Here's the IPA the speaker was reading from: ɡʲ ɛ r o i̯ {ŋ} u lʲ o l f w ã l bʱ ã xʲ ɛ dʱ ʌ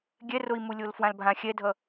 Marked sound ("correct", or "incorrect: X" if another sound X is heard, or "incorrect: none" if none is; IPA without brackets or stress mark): incorrect: m